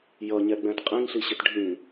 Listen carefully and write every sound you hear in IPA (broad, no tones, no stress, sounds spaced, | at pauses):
j ʌ ɲ ɛ ɡ͡b ɛ̃ t qʼ ĩ ŋ ɬ i ɕ ɪ t ɖʱ ĩ